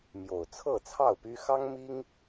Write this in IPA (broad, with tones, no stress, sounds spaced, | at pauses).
m j o˨˩ ʊ̯ t͡sʰ ɤ˥˨ t͡sʰ ɑ˥˨ ʊ̯ p y˦ x ɑ˦ ŋ m i˦ ŋ